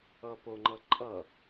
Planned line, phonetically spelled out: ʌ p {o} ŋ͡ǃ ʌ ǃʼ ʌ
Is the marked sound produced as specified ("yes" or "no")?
yes